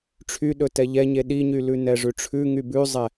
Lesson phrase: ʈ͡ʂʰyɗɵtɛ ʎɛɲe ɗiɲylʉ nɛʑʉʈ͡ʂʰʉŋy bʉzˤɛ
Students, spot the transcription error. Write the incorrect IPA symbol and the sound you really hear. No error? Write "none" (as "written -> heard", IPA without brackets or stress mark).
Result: ʑ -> ʐ